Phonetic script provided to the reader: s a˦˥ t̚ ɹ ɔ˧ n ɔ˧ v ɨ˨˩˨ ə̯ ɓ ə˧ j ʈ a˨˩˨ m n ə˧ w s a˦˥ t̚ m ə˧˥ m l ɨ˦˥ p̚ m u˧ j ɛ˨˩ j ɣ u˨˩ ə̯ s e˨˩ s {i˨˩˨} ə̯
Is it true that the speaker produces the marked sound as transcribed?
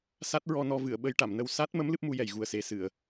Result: no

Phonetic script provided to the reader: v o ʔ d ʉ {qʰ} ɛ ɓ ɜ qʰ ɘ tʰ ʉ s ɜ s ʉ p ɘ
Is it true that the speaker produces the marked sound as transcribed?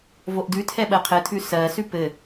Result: no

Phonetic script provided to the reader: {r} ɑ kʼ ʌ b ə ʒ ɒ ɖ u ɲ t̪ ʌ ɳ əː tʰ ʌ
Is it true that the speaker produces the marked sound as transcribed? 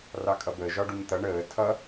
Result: yes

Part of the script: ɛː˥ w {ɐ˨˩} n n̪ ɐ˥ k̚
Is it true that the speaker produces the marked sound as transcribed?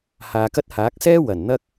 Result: yes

